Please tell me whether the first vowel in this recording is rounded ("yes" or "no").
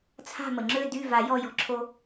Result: no